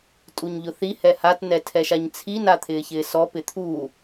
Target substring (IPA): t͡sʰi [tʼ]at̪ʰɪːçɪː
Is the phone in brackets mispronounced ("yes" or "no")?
yes